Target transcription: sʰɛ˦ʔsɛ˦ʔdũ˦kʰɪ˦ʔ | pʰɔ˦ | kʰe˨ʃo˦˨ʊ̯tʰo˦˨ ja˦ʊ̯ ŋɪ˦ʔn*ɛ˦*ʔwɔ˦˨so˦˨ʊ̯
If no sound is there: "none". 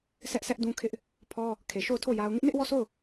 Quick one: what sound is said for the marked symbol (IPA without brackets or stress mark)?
ɪ˦